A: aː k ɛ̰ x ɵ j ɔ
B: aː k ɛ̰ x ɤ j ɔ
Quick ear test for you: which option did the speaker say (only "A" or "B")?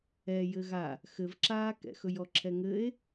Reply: A